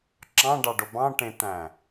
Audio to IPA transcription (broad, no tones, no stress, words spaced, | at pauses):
ǁɑ̃ɖɑɖo bɑ̃ʈẽt̪æ̃